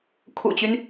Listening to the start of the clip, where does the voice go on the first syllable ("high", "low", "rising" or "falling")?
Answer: low